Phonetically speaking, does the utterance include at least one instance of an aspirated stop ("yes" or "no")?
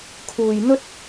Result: yes